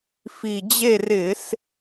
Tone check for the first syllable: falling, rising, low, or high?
low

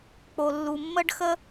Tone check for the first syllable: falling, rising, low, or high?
low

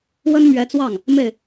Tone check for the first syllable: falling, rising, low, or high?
high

